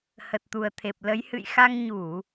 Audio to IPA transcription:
h ə˨˩ t̚ t̪ u˨˩ ə̯ t̪ʰ e˨˩ p̚ l ə˨˦ j h ɨ̰˧˨ j x a˧ ŋ ɲ u˧˩˨

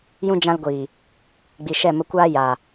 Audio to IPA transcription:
j ũ˧ d͡ʒ ã˧ l ɡʷ iː˨ | ɡ͡b i˨ ʃ ɛ˦˨ m ə˧ kʷ aː˦ j aː˨

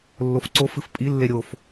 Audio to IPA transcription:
lː o f ǀ o f ɨ f pʼ i lː e ɾʲ o f

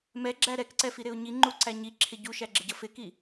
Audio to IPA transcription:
m ɛ ɡ͡ǁ æ ɾ ɛ k ǀ ɛ f i ɾ ɪ ʊ̯ ɲ i ŋ͡ǃ u ǀ æ ɲ i ǁʰ ɪ ɟ u ʃ æ ɡ͡ǁ ɪ ɟ ʌ f ɪ k i

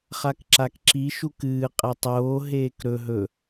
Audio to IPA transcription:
χ a k ǁ a k ǁ i ʃ u k ɨː qʼ e tˤ oː ɦ eː k ɾ ɵ ɦ ɵ

